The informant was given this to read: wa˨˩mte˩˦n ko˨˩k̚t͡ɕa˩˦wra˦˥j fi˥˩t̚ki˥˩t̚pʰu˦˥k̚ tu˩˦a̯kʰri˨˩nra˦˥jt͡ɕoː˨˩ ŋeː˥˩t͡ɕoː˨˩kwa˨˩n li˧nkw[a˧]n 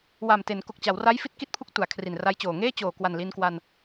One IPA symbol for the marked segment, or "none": a˧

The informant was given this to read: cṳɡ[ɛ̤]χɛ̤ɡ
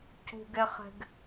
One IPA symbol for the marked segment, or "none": ɛ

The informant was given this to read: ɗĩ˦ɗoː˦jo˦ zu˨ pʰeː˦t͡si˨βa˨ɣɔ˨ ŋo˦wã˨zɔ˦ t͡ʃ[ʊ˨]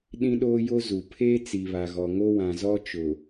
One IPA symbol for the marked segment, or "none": ʊ˨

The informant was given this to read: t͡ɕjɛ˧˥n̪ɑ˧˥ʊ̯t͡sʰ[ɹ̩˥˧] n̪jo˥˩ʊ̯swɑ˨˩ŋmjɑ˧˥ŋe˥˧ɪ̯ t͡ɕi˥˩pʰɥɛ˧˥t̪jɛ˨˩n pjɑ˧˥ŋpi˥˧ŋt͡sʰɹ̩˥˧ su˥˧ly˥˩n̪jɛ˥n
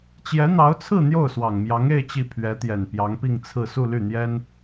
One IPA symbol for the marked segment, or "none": ɹ̩˥˧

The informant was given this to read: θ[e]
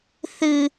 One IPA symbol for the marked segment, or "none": ɨ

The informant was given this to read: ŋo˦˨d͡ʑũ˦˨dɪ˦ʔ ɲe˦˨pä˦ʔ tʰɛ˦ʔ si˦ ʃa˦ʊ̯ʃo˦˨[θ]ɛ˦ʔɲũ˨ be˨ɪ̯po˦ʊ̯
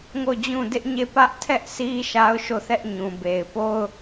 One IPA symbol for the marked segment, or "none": θ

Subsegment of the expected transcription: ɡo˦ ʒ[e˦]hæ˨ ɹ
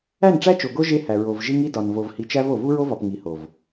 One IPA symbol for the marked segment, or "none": e˦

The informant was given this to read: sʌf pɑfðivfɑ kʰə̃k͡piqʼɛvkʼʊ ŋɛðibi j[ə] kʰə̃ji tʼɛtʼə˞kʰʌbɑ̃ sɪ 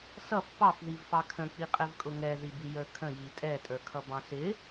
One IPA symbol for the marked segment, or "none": ə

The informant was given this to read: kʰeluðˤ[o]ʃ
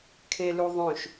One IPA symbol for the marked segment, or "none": õ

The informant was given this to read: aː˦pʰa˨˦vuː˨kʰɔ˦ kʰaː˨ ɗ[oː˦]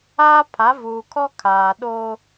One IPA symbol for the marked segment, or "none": oː˦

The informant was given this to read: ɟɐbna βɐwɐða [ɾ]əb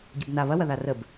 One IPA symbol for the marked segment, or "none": r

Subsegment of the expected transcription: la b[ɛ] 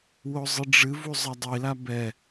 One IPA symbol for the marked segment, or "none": ɛ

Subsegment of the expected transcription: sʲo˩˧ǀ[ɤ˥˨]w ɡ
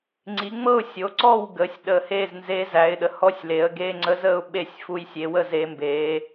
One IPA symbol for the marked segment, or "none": ɔ˥˨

